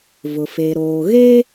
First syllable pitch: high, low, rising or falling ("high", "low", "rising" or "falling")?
low